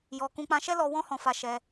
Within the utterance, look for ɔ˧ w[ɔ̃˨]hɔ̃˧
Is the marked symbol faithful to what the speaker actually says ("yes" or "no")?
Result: no